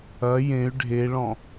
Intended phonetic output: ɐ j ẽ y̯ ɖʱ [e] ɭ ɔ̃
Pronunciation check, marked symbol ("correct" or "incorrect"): correct